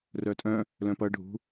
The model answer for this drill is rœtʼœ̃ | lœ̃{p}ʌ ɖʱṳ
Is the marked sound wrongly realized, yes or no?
no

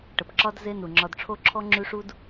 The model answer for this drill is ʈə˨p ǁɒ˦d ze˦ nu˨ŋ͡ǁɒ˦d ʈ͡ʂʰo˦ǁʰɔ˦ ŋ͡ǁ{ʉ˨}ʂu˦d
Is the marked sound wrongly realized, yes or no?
yes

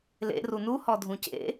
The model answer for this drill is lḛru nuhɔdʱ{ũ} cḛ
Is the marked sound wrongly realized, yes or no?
no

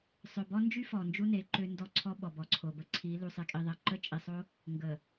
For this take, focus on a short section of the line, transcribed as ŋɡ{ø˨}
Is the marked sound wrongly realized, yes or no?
yes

